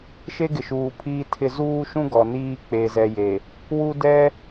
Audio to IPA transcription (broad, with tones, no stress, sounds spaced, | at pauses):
ʃ e˦ ɡ ɪ˨ ʃ uː˨ pʰ iː˦ tʰ ɪ˦ z uː˦ ʃ ũ˦ ɡ ɔ˨ n iː˦ k͡p e˦ z ɛ˦ j e˨ | w u˦ d ɛ˦